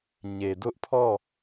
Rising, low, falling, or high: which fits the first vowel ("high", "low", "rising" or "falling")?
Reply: low